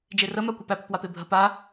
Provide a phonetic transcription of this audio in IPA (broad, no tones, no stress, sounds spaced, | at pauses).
d͡ʒ e r ə m a kʷ æ p æ p ə p w a p e bʱ ə p a